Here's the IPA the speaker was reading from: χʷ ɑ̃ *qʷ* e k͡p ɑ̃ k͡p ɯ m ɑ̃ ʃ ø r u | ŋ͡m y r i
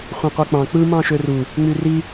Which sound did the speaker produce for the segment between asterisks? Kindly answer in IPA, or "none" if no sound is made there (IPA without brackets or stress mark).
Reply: qʷ